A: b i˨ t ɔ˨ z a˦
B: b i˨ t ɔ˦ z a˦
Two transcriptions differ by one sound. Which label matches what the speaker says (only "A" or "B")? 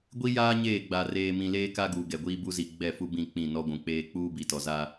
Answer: A